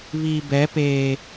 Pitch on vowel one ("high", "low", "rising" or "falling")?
low